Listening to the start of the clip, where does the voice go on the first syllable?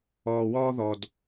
low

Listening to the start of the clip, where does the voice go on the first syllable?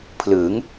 rising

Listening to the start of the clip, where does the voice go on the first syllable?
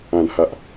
low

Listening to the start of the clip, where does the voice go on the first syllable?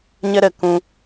high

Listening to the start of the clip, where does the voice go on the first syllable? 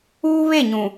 high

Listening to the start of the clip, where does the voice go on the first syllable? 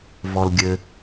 low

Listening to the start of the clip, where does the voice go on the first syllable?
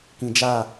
low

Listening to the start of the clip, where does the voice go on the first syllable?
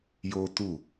high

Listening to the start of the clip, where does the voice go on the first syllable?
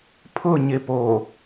falling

